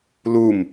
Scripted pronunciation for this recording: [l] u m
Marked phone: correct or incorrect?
correct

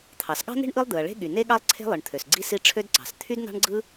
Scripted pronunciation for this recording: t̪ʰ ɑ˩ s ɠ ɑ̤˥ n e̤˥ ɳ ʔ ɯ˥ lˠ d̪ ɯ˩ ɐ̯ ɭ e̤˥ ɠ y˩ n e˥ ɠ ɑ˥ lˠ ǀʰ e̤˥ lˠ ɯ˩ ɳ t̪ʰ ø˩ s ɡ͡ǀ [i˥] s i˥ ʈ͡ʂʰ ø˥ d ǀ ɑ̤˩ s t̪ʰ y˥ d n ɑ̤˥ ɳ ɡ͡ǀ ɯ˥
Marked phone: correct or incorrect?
correct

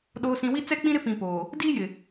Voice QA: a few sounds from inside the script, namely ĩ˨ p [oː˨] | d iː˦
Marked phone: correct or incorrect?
correct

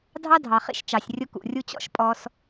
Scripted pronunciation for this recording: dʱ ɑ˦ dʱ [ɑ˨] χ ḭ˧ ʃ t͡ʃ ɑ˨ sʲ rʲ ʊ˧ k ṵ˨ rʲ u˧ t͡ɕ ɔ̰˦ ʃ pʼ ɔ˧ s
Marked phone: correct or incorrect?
correct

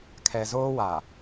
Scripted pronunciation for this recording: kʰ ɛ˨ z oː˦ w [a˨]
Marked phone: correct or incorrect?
correct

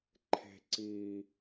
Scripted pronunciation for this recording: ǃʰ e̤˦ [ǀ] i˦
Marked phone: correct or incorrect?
correct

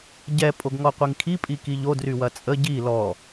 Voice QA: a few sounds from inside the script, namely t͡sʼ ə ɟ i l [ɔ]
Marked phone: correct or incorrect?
correct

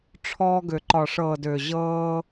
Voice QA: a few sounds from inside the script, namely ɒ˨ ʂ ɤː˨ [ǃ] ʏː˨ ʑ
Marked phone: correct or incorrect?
incorrect: d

